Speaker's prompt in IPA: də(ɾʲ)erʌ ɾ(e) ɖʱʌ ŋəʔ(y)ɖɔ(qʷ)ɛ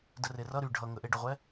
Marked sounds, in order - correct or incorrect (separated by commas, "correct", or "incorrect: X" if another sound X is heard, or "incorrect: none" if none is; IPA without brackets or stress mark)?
incorrect: r, incorrect: y, incorrect: e, incorrect: ʁʷ